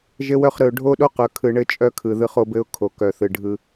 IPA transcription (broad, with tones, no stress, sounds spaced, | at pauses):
ʒ ɘ˦ w œ˦ χ ɾ ɯ˨ ʊ̯ ɖʱ o˦ ɗ o˦ q œ˨ kʰ ɯ˨ ɳ ɘ˦ t͡ʃʼ œ˦ kʰ ɯ˨ ð ɯ˦ χ o˦ b ɘ˦ ʊ̯ kʰ o˨ k œ˨ θ ɯ˨ ɖʱ ɯ˦